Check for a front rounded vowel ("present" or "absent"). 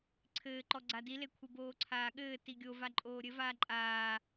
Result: absent